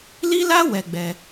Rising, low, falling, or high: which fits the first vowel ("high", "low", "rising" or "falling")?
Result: high